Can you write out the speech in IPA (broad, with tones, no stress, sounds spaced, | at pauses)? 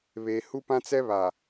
β eː˨ h u˦ p ã˦ t͡s ɛ˦ β a˨